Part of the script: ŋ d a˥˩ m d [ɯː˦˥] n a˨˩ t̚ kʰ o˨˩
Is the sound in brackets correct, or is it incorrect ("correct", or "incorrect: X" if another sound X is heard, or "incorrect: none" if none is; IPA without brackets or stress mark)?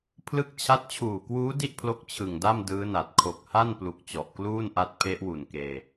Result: correct